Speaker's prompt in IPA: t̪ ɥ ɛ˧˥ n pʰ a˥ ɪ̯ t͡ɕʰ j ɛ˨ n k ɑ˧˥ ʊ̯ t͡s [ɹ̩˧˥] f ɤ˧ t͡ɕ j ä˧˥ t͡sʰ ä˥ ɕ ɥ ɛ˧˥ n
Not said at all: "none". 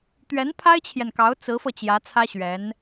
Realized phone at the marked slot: ɹ̩˧˥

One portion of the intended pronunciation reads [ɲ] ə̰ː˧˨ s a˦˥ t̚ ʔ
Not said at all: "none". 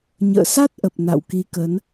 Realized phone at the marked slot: ɲ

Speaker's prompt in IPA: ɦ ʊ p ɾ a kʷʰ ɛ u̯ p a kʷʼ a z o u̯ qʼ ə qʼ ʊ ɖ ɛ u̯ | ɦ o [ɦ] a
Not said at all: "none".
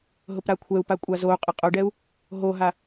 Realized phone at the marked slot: ɦ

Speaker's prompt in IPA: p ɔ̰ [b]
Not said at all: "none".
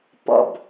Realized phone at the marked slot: b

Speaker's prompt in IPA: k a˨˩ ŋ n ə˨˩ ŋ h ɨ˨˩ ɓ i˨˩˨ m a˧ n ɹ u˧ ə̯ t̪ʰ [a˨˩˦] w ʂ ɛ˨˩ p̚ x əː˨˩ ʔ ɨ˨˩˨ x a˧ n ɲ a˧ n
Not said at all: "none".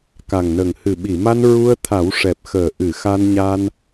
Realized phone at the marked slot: a˨˩˦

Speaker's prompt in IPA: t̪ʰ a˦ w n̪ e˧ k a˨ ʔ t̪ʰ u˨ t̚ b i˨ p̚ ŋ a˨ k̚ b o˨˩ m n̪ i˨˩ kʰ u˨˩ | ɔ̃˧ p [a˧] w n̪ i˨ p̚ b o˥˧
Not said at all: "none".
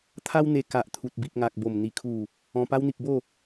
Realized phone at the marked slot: a˧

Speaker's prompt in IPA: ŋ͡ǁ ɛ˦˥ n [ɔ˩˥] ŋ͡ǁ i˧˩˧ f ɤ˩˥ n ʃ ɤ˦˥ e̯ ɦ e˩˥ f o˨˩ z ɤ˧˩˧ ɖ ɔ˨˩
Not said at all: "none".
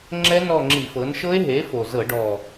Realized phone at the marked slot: ɔ˦˨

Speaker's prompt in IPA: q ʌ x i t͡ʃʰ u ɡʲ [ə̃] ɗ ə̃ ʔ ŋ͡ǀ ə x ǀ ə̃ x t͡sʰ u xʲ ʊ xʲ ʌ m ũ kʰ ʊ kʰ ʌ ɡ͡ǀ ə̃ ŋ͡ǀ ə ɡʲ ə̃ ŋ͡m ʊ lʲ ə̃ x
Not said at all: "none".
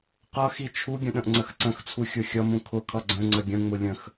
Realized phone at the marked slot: ə̃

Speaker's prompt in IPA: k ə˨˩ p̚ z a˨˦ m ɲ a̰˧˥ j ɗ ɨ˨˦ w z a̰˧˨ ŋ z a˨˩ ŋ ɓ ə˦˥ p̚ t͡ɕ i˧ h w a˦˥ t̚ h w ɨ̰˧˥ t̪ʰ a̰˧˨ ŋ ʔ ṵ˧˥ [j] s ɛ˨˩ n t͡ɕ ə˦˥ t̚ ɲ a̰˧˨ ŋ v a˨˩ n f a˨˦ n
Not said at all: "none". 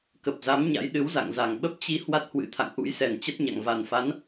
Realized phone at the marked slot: j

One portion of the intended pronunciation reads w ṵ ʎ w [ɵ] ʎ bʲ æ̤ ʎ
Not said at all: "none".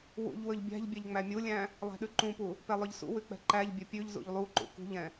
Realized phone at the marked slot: ɵ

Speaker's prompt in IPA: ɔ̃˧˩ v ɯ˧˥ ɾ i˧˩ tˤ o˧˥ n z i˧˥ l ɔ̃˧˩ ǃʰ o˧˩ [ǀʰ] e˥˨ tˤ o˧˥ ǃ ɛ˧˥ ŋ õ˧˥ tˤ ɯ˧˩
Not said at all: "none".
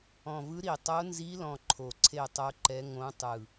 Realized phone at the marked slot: ǀʰ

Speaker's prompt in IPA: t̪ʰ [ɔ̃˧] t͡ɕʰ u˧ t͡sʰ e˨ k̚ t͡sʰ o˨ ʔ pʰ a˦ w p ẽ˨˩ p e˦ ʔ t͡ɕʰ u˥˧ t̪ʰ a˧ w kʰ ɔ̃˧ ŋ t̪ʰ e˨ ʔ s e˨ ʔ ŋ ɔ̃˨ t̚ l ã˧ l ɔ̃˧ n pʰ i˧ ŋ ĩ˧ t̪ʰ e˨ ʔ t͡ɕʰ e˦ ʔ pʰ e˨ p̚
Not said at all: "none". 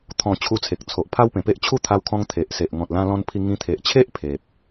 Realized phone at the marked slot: ɔ̃˧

